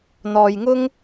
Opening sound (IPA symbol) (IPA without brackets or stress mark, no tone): n̪